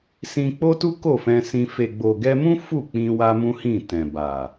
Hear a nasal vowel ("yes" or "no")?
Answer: yes